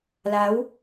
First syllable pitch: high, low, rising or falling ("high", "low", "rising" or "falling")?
rising